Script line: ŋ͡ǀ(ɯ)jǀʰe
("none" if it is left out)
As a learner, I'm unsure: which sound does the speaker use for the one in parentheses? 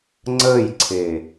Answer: ə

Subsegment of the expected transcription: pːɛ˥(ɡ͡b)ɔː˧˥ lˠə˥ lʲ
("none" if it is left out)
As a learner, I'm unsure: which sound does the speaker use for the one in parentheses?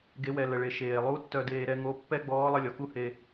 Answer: ɡ͡b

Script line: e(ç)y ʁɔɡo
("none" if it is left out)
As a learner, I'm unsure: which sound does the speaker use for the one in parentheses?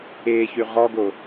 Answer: ç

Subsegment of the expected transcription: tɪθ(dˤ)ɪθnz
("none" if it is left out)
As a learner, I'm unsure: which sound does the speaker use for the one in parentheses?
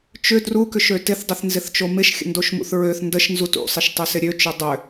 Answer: dˤ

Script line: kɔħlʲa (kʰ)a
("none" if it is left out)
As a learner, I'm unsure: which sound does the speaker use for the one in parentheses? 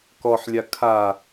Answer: kʰ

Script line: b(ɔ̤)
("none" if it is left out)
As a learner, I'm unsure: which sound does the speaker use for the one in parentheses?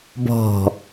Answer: ɔ̤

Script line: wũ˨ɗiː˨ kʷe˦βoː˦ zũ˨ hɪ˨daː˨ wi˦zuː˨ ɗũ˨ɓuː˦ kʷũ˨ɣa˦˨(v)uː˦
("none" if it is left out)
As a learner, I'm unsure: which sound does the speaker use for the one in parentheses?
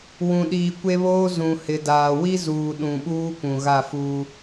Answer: f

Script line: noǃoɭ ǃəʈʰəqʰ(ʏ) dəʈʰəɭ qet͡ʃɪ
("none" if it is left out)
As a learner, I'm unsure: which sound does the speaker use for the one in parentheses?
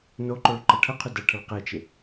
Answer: ʏ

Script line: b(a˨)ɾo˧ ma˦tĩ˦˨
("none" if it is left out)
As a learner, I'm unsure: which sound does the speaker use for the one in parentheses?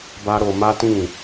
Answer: a˦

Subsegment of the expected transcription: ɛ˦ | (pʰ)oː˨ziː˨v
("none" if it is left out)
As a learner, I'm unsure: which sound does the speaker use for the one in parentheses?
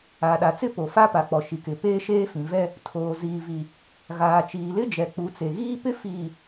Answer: tʰ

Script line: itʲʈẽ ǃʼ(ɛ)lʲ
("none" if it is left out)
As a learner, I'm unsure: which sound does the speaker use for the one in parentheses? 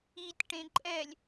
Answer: ɛ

